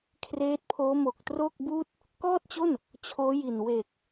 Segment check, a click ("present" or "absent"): absent